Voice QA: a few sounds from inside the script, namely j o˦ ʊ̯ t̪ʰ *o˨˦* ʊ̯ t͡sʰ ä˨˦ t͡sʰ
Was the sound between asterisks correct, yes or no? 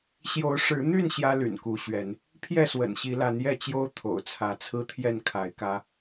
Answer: no